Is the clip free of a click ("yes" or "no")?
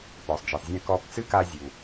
yes